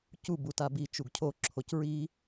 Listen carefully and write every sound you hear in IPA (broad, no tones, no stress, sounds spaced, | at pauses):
c u b u t a b i t͡ʃ u ɡ cʰ o ǁʰ o c ɹ i